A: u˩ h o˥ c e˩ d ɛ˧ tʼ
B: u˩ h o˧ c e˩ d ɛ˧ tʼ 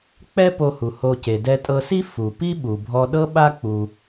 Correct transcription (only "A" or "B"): B